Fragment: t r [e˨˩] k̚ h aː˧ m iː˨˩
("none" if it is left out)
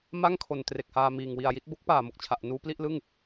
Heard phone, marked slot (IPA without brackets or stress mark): e˨˩